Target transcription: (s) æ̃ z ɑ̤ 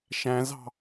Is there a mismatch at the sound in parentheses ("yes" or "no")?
yes